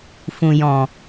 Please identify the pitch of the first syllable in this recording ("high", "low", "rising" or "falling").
low